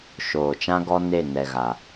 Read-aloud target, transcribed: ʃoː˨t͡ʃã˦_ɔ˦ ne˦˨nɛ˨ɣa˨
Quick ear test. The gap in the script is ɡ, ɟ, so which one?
ɡ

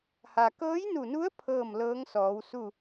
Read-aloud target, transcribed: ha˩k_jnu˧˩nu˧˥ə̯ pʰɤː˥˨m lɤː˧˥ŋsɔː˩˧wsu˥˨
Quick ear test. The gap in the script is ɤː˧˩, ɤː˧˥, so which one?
ɤː˧˥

